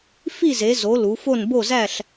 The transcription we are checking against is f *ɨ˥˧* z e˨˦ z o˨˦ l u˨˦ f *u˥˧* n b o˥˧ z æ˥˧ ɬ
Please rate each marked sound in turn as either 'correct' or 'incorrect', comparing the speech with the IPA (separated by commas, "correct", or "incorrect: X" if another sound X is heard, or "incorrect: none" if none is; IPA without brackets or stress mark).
incorrect: i˥˧, incorrect: o˥˧